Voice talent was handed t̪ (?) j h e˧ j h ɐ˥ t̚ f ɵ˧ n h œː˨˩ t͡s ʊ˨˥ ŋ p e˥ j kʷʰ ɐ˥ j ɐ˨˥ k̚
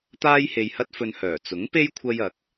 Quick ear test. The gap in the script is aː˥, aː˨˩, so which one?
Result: aː˥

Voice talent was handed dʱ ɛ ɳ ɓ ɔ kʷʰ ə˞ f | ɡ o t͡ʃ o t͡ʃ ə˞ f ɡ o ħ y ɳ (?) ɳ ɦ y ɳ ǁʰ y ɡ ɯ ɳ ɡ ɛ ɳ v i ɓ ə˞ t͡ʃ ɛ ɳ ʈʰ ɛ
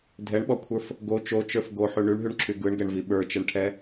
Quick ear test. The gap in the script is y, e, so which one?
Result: y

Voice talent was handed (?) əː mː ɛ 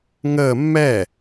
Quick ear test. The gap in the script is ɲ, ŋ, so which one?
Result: ŋ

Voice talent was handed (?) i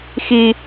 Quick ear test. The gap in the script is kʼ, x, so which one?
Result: x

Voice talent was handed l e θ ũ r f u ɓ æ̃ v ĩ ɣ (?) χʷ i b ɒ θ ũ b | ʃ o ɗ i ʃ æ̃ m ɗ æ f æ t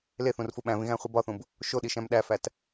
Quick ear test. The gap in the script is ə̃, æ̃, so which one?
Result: æ̃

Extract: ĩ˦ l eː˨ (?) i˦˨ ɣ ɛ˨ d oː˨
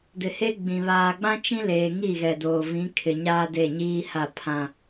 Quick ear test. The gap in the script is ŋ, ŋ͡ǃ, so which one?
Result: ŋ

